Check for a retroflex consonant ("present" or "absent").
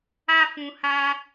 absent